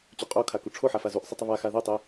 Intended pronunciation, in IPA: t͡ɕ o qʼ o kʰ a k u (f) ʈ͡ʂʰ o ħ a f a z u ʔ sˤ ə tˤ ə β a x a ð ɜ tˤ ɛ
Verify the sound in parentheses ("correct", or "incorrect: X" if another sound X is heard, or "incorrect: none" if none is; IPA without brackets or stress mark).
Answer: incorrect: none